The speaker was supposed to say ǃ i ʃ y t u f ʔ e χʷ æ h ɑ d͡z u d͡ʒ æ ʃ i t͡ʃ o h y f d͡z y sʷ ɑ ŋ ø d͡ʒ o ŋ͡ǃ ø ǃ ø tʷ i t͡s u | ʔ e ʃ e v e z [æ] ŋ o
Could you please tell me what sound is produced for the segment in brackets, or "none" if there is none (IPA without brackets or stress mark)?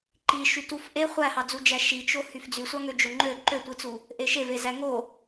æ